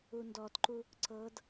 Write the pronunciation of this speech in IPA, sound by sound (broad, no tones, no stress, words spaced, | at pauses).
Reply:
undɔtǃu | ǀɤd